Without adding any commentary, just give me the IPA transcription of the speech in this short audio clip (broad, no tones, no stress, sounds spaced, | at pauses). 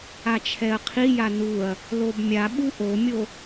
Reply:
a t͡ʃʰ ɛ ɐ̯ qʰ i j a n u ɐ̯ | l o b mʲ a ɓ u ʔ o mʲ o